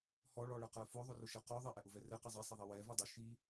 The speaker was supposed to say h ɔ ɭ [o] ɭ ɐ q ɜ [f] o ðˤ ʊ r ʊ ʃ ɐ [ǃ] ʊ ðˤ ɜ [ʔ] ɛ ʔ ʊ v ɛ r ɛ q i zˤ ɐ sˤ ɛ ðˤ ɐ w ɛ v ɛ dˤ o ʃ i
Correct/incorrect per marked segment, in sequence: incorrect, correct, incorrect, correct

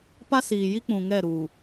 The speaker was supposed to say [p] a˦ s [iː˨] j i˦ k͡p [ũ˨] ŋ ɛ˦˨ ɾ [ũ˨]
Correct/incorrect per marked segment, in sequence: correct, correct, correct, incorrect

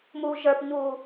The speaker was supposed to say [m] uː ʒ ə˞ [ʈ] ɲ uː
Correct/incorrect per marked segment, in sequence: correct, incorrect

